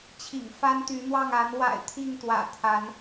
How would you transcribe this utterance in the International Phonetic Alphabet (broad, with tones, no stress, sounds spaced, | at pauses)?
t͡ɕʰ ḭ˨˩ ŋ f a˦ n t̪ y˨˦ n̪ w ɑ˥˨ ŋ a˨˦ n w a̰˨˩ ɪ̯ t̪ʰ i˥˨ ŋ t̪ w ä̰˨˩ t̪ʰ a˨˦ n